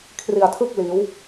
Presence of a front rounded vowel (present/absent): absent